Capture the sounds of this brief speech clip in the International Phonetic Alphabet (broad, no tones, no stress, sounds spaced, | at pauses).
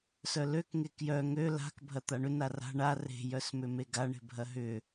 s œ l ø k ŋ e k j œ ŋ ø l a̤ k bʱ ɐ t̪ a ɳ ʏ n a r a̤ ɳ a r e̤ j œ s m ʏ m e ɡ a ɳ e̤ bʱ ɐ ɦ ʏ